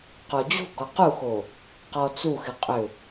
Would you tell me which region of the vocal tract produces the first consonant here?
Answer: uvula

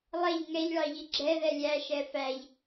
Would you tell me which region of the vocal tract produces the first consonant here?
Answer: tongue tip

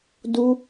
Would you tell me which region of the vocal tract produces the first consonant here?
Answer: tongue tip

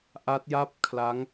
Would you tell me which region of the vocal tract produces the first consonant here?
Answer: throat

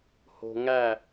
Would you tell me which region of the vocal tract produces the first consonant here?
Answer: throat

